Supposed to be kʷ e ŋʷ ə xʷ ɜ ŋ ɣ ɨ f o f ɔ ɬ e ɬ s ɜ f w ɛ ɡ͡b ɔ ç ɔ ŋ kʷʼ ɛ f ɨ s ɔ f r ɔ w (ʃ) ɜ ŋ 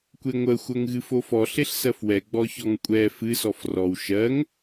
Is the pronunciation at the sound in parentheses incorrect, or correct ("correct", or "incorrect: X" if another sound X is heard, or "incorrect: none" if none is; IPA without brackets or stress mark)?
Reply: correct